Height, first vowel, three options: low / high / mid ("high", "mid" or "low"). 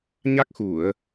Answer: low